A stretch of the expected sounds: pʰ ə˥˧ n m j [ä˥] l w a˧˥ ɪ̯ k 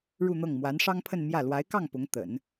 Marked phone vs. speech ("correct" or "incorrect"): incorrect